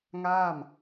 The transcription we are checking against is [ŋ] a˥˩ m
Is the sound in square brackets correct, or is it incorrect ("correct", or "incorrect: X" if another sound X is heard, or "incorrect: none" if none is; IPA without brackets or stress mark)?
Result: correct